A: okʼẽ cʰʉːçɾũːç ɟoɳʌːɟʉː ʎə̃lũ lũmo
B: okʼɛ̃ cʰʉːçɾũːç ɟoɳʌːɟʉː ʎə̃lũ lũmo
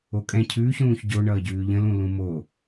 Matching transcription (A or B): B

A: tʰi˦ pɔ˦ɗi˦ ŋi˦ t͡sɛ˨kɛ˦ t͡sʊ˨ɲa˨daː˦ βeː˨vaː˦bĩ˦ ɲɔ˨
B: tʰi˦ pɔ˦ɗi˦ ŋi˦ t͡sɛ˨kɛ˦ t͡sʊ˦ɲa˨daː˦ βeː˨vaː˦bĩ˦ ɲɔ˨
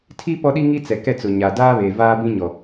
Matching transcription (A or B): A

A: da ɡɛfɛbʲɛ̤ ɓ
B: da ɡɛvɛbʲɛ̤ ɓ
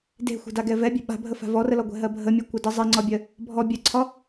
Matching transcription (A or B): B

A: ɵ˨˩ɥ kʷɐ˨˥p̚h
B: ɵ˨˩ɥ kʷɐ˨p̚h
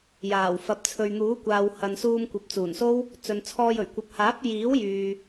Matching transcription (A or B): B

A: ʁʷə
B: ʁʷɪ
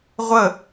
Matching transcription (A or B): A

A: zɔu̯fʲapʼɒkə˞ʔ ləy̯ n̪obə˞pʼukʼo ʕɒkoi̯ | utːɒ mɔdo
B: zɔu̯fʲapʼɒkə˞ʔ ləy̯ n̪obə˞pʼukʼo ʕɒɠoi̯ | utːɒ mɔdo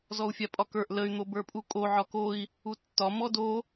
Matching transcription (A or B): A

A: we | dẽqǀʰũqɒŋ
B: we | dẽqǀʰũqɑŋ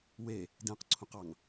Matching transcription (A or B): B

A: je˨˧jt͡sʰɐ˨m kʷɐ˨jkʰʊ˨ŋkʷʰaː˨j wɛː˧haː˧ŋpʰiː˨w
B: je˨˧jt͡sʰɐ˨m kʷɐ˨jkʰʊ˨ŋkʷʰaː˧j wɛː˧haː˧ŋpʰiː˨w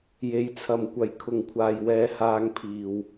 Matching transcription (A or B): A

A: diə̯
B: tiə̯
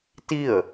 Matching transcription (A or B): B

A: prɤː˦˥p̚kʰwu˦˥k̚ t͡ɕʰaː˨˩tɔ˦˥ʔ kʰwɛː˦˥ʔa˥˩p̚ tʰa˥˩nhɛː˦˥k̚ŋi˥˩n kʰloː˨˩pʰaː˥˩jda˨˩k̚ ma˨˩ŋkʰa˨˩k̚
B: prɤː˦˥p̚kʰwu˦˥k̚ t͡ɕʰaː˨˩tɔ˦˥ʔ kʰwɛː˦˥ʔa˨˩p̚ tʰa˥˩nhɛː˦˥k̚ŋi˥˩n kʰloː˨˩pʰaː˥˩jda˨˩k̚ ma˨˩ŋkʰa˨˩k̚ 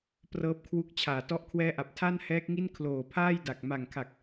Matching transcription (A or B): B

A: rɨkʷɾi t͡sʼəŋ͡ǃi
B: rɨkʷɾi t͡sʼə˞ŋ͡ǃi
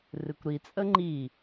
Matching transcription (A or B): A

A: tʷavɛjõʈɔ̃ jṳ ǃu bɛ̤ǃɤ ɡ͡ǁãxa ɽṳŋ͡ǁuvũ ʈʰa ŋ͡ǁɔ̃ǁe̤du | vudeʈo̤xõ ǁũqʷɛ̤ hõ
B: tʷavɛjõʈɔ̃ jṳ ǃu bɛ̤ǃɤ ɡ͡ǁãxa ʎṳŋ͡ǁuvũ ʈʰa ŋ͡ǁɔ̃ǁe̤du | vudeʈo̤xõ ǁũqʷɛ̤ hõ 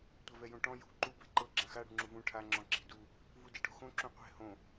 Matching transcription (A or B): A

